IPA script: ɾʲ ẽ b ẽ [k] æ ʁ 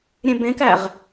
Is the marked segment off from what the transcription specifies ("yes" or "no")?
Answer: no